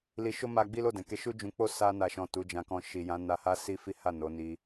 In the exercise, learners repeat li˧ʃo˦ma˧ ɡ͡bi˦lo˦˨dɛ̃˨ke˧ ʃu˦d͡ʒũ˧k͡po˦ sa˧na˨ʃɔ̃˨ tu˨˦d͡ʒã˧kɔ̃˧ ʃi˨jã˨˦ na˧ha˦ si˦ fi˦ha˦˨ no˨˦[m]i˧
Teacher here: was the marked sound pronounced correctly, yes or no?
no